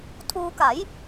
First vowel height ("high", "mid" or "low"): high